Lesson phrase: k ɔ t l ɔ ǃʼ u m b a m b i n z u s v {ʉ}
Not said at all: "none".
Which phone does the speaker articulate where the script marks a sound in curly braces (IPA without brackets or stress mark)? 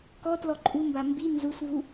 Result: u